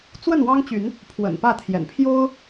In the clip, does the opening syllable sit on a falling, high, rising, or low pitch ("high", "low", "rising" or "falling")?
falling